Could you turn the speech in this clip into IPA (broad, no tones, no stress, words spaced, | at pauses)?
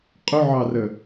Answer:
qʼʊʕɑrə